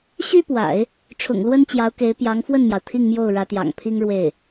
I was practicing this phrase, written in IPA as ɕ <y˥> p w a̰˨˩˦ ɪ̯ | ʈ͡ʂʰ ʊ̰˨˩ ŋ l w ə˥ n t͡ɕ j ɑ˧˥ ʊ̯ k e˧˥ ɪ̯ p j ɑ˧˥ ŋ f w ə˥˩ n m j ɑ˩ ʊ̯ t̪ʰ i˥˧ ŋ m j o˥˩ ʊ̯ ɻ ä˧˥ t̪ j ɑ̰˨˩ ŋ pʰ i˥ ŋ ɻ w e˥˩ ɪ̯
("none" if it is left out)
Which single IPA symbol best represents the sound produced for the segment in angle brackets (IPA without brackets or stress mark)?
y˥